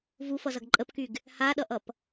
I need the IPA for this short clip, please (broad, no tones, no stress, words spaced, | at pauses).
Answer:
vufʌzʌɡ ǃʼəpkyɡ | haɗʌʔʌp